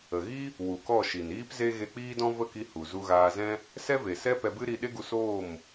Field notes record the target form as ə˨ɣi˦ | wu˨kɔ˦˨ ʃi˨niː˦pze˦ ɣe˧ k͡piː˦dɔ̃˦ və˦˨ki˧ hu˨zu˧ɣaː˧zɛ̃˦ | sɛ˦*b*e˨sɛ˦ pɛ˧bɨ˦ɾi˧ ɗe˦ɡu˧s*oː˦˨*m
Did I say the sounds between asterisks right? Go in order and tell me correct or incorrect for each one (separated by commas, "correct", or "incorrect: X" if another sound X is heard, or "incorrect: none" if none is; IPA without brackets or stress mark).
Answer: incorrect: v, correct